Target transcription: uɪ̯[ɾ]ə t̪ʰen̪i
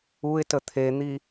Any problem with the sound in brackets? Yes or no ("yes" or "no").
yes